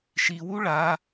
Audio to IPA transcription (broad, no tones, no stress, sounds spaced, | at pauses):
ʃ i w u ɭ a